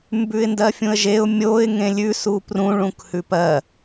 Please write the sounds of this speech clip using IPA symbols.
m b ʉ ɪ̯ n d ɜ fʲ ũ ə̯ ʒ e ʊ̯ mʲ o ɪ̯ ŋ ẽ lʲ ʉ s u p r ũ ɭ ũ k h ʉ p ɜ

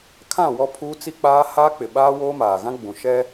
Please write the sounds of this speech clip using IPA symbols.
kʰ ã˦˨ w ɔ˦ pʰ uː˦ t͡s i˦ k͡p aː˦ h aː˦ k͡p ɪ˨ ɓ aː˦ w oː˦ m aː˨ ɣ ã˦ ɡ͡b ũ˨ ʃ ɛ˦

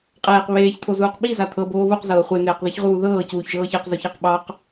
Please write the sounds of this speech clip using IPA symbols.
qʼ eː q β eː ç t̪ʰ o z uː q ɓ i z a t̪ʰ ɤ b oː β u q z ɤː χʷ e n̪ eː q ð i ç ʁ uː ð ɤː c uː ç ʒ ɤː ç e q z o ç a q ɓ ɑ q

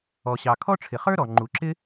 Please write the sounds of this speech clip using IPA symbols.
ɔ˩ ɕ ɑ˩ kʰ ɔ˥ ʈ͡ʂʰ ɪ˩ χ ə˞˥ ɾ ɔ˩ ŋ͡ǃ u˩ ǁ ɪ˥

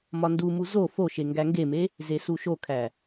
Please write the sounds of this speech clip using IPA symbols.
m ɒ n d u m u z o f o ʃ e ŋ ɡ æ ŋ ɡ e m e | z e s u ʃ o kʰ æ

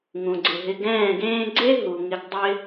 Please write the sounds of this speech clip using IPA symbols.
ŋ ũ˨ ɡ͡ǀ ɪ˨ ɦ ɪ˧ ɡ ɛ̃ː˦˨ ɡ ẽː˦ ɡ͡ǀ e˦ ɦ u˨ ŋ ɪ˧ ɡ dˤ ɪ˦

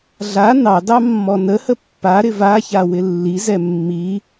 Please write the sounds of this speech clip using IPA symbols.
ɮ a n ɑ d ɑ mː ɔ n ə h ə pː a ɾ ɪ v a ç a w ɪ lː i z ɛ mː i

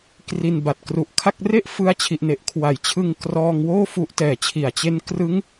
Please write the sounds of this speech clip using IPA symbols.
k r i˧ n b a˨˩ t̚ k r u˨˩ ʔ kʰ a˥˩ k̚ r e˥˩ ʔ f ɯ˧ a̯ t͡ɕʰ i˨˩ ʔ n e˨˩ ʔ kʰ w a˨˩ j t͡ɕʰ ɯ˧ ŋ k r ɔː˧ ŋ w oː˥˩ f u˦˥ ʔ t ɛː˨˩ t͡ɕʰ i˨˩ a̯ t͡ɕ e˦˥ n k r ɯ˦˥ ŋ

